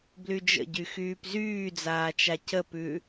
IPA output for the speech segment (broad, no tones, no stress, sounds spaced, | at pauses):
b l y d͡ʒ ə̰ ɟ y x yː p z yː d͡z aː t͡ʃ a c ə p ʉ